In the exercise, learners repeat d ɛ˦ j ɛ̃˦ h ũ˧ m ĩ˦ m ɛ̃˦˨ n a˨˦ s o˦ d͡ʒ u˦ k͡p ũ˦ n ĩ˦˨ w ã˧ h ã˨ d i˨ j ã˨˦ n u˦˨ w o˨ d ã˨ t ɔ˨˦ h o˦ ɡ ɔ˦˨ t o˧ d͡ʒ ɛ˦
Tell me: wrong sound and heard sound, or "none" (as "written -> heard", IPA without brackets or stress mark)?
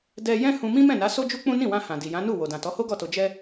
none